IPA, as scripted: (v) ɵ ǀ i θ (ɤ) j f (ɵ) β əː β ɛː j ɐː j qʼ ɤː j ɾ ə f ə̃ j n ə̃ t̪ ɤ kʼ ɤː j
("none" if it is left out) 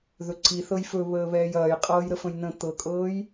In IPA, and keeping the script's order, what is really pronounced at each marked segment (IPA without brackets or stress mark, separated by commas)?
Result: ð, ɤ, ɵ